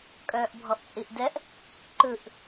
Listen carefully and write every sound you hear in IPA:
kʼ œː ʔ bʱ ɔ ʔ t͡sʼ i ʔ d ɛ ʔ | ǃ ɯ ʔ

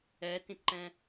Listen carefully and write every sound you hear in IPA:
ɛ t ĩ t ǃ ɛ̃

